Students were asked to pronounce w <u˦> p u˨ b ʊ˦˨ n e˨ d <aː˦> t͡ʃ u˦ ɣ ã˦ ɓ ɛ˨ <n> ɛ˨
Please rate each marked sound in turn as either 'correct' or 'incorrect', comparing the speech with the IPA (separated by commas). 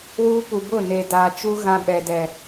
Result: correct, incorrect, incorrect